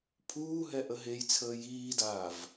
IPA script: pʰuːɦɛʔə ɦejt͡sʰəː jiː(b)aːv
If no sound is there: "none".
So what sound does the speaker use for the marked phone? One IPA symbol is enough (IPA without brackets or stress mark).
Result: d